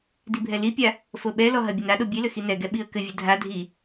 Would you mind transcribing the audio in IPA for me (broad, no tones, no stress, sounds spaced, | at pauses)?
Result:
d i bʱ ɛ l i pʲ a | f o ɓ ɛ l ɔ ɦ ɐ bʲ ɘ n a ɗ o bʲ e l ɘ x i n ɛ ɡ ɛ ɓ i ə̯ k ɘ vʲ ɘ dʱ a dʱ i